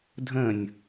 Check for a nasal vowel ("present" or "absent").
present